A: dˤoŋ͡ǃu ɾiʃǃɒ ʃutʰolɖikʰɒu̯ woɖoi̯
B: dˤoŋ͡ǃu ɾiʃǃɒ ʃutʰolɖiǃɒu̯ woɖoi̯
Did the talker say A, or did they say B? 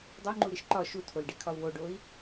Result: A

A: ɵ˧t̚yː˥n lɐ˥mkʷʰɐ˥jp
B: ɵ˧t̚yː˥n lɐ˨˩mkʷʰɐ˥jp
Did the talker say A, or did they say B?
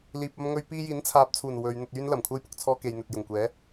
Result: B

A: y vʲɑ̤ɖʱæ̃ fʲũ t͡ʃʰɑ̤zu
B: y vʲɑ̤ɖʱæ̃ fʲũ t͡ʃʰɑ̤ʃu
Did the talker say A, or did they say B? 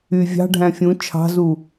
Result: A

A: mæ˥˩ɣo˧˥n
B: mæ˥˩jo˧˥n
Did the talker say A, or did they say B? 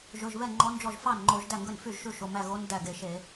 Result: A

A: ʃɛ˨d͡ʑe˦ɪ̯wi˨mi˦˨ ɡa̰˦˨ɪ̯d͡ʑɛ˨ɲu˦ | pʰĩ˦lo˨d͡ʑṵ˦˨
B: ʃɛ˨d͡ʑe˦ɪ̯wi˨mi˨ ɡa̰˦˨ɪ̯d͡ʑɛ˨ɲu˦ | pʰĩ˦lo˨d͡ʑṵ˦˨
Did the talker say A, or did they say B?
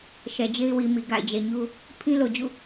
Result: B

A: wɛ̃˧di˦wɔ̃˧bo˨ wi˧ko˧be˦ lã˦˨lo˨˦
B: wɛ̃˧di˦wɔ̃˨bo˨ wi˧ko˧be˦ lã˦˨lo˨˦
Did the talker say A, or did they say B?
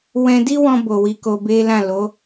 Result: A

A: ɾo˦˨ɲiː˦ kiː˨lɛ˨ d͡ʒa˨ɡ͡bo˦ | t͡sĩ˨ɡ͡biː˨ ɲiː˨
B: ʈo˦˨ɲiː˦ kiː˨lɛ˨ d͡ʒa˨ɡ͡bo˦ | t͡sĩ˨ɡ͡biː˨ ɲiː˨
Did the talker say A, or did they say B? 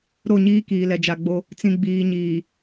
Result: A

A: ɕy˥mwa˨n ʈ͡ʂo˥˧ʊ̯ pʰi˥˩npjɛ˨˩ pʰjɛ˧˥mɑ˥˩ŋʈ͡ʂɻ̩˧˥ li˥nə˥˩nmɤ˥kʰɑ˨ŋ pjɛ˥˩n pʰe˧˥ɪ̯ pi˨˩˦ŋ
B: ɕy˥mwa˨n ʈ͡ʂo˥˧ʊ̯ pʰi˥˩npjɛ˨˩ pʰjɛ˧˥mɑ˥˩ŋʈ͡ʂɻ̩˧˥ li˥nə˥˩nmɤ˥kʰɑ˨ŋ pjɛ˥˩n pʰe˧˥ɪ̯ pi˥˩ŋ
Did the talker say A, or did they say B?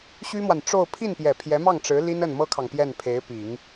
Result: A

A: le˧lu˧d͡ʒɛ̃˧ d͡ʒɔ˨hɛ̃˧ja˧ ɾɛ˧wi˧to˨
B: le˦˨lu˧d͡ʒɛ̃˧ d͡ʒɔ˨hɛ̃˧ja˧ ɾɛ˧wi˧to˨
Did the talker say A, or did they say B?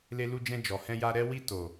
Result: A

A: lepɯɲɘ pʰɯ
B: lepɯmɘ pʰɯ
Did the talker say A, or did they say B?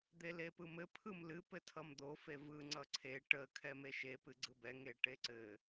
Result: B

